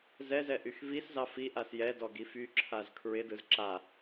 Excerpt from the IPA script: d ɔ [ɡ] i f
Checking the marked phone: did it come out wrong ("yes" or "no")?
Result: no